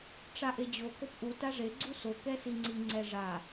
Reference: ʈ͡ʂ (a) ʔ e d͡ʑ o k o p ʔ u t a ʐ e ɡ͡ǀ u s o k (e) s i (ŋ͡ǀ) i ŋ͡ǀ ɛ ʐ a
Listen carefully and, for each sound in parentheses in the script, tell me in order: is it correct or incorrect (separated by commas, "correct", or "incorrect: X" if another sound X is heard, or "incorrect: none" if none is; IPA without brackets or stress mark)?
correct, incorrect: ɛ, correct